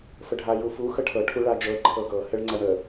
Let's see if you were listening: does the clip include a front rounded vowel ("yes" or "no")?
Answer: no